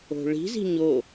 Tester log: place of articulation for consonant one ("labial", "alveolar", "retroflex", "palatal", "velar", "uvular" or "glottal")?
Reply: retroflex